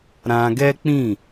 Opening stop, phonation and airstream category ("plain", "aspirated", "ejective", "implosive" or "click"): plain